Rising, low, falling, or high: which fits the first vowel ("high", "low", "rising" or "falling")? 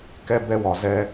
high